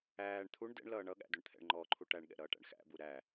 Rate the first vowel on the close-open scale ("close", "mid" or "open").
open